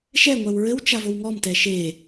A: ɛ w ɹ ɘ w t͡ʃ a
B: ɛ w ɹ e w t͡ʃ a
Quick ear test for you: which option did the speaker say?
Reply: A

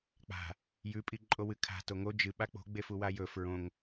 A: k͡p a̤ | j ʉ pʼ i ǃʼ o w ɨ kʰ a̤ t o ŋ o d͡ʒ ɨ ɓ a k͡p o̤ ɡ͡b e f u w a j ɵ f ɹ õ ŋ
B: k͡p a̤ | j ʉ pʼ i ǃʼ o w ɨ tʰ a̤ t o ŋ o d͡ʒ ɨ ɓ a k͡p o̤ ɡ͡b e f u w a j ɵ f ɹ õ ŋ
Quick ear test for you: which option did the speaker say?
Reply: A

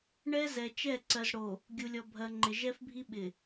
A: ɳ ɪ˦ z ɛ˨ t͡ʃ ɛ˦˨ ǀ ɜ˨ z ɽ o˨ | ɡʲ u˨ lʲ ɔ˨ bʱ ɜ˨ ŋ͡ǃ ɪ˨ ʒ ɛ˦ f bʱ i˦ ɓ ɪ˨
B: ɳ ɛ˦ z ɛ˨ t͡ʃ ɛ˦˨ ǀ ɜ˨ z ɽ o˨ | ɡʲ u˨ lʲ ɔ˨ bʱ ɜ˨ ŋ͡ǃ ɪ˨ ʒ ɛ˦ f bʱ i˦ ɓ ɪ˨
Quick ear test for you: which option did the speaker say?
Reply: B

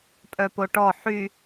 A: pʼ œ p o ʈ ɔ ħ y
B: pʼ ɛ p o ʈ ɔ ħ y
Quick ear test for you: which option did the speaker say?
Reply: A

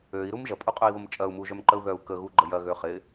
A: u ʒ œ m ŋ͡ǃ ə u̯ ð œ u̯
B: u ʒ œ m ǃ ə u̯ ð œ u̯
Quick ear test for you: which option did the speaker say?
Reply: B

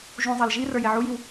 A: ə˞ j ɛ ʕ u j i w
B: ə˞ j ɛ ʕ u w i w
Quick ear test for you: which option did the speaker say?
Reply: A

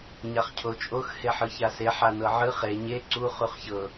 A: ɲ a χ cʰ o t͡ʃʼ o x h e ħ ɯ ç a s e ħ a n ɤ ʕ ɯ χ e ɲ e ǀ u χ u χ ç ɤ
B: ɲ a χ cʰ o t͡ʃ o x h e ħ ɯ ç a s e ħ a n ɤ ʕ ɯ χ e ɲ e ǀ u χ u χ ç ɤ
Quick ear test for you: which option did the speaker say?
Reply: A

